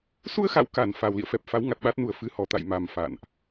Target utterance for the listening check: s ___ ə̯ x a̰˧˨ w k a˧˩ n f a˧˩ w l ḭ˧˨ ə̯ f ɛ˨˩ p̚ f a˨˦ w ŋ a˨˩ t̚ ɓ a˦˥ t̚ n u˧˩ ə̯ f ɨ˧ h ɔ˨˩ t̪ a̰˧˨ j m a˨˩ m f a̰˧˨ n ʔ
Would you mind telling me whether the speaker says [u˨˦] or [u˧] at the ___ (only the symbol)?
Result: u˧